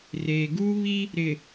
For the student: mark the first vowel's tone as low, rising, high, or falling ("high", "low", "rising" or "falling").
low